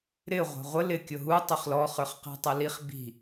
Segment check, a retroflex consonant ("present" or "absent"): absent